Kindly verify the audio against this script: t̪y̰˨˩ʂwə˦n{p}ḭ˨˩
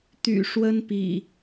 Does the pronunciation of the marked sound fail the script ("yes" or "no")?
no